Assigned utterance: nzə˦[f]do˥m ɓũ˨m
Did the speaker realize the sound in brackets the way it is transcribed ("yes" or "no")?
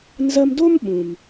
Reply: no